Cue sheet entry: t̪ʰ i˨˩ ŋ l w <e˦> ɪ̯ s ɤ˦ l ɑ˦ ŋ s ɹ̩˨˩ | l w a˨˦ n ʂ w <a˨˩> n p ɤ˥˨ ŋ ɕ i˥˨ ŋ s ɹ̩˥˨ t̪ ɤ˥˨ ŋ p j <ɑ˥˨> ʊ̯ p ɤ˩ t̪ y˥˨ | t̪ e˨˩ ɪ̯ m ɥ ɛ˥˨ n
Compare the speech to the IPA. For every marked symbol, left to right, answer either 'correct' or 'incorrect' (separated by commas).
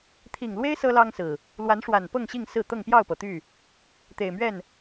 correct, correct, correct